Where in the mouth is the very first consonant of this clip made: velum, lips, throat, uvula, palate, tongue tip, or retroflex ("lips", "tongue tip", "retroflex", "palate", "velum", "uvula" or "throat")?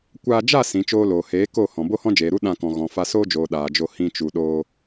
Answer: velum